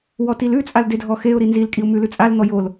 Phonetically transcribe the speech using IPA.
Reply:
wɔtilʉ t͡sʼaldedʱɔxeʊ̯ ɾinzil kʼiʊ̯mʉlʉt͡sʼal n̪ɔjol

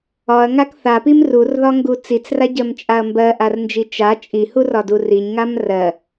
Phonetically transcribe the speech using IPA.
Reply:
ɒɐ̯ŋak θapim rurðɒŋɡu t͡sit͡sraɟɜmt͡ʃʼaɐ̯ mbɜʔarnd͡ʒi t͡ʃa t͡ʃʼihurɒdu riɲŋam rɜ

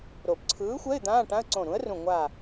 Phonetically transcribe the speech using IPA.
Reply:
ɾo˨˩˦p ǀʰɯː˨˥xʷɛ˧˥˧ɪ̯ d̪ãː˧˥˧ʈã˧˥˧ə̯ ǀõ˧˩ɾũ˨˥ə̯rũ˧˩ ŋʷa˧˩

